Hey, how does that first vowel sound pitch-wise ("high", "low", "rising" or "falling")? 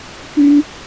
high